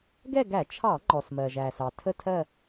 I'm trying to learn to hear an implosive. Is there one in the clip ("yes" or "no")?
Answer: no